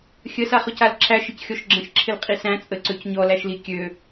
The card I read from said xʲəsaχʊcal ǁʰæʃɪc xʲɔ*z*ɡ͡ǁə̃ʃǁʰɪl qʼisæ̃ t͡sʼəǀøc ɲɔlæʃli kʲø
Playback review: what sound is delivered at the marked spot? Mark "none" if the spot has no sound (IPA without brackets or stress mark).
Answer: ʃ